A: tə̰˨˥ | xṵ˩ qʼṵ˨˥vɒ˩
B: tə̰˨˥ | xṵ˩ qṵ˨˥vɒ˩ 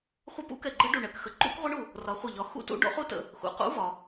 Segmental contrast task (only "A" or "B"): B